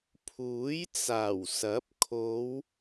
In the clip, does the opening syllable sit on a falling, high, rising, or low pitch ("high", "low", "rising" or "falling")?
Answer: rising